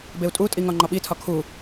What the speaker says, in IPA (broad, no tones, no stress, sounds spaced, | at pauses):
b e u̯ tʼ u tʼ i ŋ ɒ ŋ͡ǃ ɒ ɓ i tʰ ɒ kʰ u